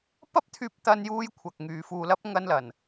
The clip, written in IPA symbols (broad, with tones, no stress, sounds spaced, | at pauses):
p ɐ˥ p̚ t̪ʰ yː˧ p̚ t̪ ɐ˥ n j uː˥ j kʷʰ ɐ˧ k̚ ŋ yː˧ f uː˧ l ɐ˥ p̚ ŋ ɐ˥ n l ɐ˨ n